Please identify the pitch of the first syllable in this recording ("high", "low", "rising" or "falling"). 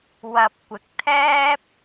low